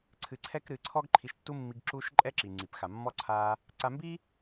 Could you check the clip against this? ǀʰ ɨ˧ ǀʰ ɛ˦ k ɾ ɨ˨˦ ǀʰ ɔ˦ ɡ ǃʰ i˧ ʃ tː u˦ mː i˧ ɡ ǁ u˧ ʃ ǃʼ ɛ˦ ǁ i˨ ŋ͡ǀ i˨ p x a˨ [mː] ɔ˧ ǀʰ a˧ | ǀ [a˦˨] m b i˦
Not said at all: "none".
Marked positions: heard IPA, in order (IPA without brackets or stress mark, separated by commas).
mː, a˧